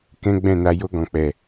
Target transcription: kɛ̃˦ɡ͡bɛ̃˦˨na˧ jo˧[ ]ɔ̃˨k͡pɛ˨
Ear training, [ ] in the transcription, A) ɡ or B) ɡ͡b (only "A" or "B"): A